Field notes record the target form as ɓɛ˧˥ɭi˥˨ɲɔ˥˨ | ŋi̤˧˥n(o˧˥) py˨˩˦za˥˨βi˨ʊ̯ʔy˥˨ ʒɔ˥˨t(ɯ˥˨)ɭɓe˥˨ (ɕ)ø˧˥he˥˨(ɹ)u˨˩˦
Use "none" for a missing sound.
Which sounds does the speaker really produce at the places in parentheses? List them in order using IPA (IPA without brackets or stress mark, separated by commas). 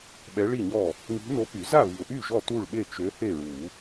o˧˥, u˥˨, t͡ʃ, ɹ